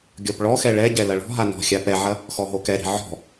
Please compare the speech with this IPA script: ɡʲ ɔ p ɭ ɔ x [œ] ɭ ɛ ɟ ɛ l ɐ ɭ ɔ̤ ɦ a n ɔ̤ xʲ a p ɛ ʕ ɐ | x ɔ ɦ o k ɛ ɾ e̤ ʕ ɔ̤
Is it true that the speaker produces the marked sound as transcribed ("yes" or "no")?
no